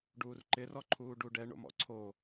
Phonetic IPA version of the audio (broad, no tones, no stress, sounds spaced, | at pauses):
ɖ uː r ǃ ɪ r ɔ ǃʰ uː ɖ u ɖ ɛ ɳ o̰ m ɔ̰ ǀʰ o